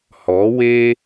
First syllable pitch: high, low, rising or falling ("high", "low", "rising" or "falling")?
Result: rising